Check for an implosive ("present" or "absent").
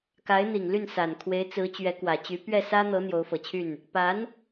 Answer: absent